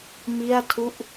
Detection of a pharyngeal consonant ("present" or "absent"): absent